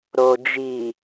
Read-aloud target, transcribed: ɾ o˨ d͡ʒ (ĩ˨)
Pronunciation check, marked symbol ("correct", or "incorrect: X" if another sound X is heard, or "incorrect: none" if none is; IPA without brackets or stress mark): incorrect: i˨